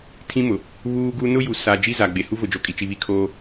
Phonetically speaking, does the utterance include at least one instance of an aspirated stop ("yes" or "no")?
yes